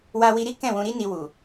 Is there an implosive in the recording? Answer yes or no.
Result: no